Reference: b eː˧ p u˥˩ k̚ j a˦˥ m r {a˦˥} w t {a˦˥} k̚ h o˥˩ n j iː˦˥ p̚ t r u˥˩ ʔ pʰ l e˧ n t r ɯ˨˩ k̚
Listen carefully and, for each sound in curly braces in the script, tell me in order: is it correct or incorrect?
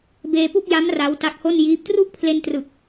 correct, correct

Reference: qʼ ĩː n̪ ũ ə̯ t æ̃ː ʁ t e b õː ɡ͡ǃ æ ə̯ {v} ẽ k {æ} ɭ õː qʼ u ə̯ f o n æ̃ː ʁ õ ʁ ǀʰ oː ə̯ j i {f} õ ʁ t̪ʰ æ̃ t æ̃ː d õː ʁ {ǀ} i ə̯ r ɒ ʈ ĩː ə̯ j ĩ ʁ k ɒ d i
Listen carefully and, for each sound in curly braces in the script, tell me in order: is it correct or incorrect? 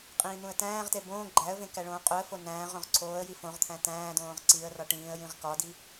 correct, correct, correct, correct

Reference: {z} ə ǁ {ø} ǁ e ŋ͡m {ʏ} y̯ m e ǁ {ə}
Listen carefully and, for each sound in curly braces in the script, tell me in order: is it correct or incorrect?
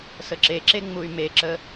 incorrect: s, incorrect: e, incorrect: u, correct

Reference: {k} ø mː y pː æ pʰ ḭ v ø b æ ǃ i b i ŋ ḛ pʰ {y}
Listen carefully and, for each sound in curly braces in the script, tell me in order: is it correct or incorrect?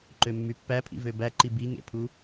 incorrect: ǃ, incorrect: u

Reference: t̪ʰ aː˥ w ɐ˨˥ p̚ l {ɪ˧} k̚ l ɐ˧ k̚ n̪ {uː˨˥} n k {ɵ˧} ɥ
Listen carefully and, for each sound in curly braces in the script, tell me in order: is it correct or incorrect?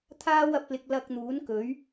correct, correct, incorrect: ɵ˨˥

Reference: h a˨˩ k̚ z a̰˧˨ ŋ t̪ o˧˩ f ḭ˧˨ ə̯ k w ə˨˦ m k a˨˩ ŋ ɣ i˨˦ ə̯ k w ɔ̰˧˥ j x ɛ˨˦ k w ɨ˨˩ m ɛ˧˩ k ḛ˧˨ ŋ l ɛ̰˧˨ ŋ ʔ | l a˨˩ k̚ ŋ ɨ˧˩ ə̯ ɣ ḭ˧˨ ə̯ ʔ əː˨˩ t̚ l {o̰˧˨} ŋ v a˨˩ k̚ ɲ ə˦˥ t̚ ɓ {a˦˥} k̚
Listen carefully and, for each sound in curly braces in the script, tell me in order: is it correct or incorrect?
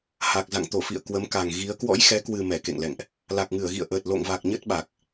correct, incorrect: a˨˩

